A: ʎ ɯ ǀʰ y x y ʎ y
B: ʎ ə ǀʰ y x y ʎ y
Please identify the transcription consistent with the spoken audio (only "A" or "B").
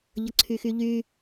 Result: B